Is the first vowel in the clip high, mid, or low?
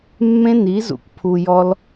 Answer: mid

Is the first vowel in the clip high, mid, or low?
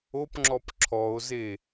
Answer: mid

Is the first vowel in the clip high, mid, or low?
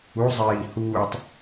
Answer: high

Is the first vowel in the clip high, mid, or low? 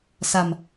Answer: low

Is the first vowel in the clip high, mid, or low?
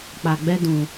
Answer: low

